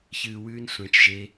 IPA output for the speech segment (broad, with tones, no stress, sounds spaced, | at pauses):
ç ɨː˨ w ʉː˧ n sʷ ẽ˨˦ t͡ʃ ʒ e˧